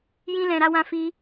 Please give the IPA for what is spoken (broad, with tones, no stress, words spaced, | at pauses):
jĩ˧lɛ̃˨ɾa˧wã˧ fi˧